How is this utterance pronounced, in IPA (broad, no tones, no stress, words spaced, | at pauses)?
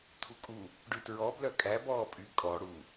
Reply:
tʰukʼu | ɖytɹɔ blœkʼæ bɔːpʼy kʼɔ ɽu